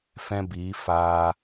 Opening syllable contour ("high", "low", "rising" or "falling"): high